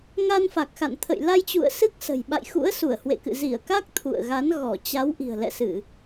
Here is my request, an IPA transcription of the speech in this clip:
ŋ a˧ n f a˨˩ k̚ x a̰˧˨ n t̪ʰ ə̰˧˨ j l a˧ j t͡ɕ ṵ˧˨ ə̯ s ɨ˦˥ k̚ s ə̤˨˩ j ɓ a̰˧˨ j x ṵ˧˥ ə̯ s u˧˩ ə̯ h w ḛ˧˨ k ɨ̰˧˨ z i˧˩ ə̯ k a˦˥ k̚ t̪ʰ ṵ˧˨ ə̯ ɣ a˨˦ n ɣ ɔ˧˩ t͡ɕ a˨˦ w ʔ i̤˨˩ ə̯ l ɛ̰˧˨ s ɨ˧˩˨

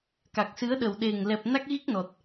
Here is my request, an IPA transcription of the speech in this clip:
k a˨˩ k̚ s ɨ˨˦ ə̯ ɗ ə˨˩ w ɗ e˨˩ ŋ l ɛ˨˩ p̚ n a˦˥ k̚ ɣ i˦˥ k̚ n ɔ˨˩ t̚

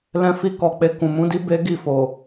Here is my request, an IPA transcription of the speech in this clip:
l ɛ̃˧ f i˧ k ɔ˨ k͡p e˧ k ũ˨ m ũ˨˦ d i˦ b e˦ ɡ i˦˨ f o˨

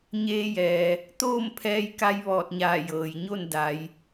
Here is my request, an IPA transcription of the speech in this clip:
ɲ eː˧ j ɛː˩ | t̪ oː˥˨ m pʰ ɛː˧ j k a˧ j ʋ ɔː˧˩ t̚ ɲ aː˧˩ j ɤː˩ j ɲ o˥˨ n d a˩˧ j

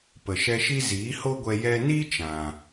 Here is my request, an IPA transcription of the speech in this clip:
p ə˨ ʃ ɛ˧ ʃ i˦ z iː˨˦ h o˦ ɡʷ ɛ˧ j ɛ˧ n i˦ t͡ʃ ã˨

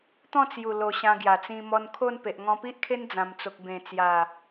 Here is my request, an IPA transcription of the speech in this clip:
t̪ ɔ̃˥˧ t͡s j u˨˩ l o˨˩ ɕ ã˧ ɡ j a˨˩ t͡s ĩ˧ m ɔ˧ n kʰ o˥˧ n p e˨ ʔ ŋ ɔ̃˧ p i˦ ʔ kʰ e˦ n d͡z ã˨˩ m t͡s o˨ k̚ b ẽ˨˩ t͡s j a˨˩

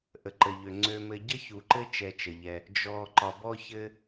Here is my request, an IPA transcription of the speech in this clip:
ʔ ə˩ ǃ ə˩ ʎ ø˩ ŋ͡ǀ ø˨ m ɘ˨ ɟ ə˥ ç u˩ ǃ ɘ˦ t͡ʃ ɛ˨ t͡ʃ ə˩ ʎ ɛ˨ | d͡ʒ ɔ˨ ǃ ɒ˨ b ɔ˥ ç ɘ˥

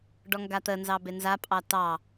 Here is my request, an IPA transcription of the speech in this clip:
ɖ ɔ ŋ ɡ a t̪ ə n z ɑ b e n z a pʼ ɑ t ɑ

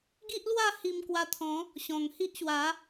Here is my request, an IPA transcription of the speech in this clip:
ɡ i˦ ʔ l w a˥˧ h i˧ m k w a˧ t̪ʰ ɔ̃˨˦ | ɕ ɔ̃˨˩ ŋ h i˦ ʔ ɕ w a˨˦

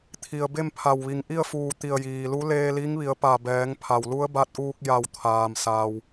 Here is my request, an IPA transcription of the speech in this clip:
t̪ʰ i˩ ə̯ b e˥˨ m pʰ a˧˩ w ʋ i˩˧ ŋ ʔ i˥˨ ə̯ f uː˧˩ t̪ i˧˩ ə̯ j iː˩ l u˧˥ l eː˧ l i˧˥ ŋ ʋ i˩˧ ə̯ p a˧˩ b ɛː˩˧ ŋ pʰ a˩ w l u˧˥ ə̯ b a˧˥ t̚ ʔ uː˧ k̚ j a˧˩ w t̪ʰ aː˩ m s a˩ w

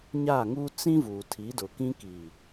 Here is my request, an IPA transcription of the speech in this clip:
ɲ a˦˨ ŋ uː˦ t͡s ĩ˦ v uː˨ tʰ i˨˦ d ʊ˨ k ĩ˦ k iː˨

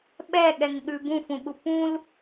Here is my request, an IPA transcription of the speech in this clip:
ɓ ɛ ɠ ɛ ŋ ɠ ʉ b ũ f ũ ɠ u p ũ l

